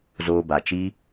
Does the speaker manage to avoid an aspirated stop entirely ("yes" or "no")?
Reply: yes